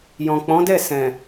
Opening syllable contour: low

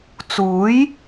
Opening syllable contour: rising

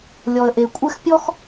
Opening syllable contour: low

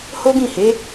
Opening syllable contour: high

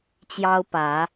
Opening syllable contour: high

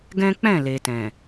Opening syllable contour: high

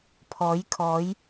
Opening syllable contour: rising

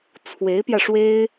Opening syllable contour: rising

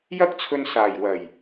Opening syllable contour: high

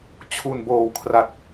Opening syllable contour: low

